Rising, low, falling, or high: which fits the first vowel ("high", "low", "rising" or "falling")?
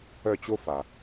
falling